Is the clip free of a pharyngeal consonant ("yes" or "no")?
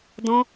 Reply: yes